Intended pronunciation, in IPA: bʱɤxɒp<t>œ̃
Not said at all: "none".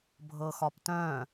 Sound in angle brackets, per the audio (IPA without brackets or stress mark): t